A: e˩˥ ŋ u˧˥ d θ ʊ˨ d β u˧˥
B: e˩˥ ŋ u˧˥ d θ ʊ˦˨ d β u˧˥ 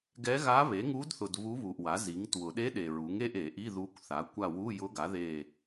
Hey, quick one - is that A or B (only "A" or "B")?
A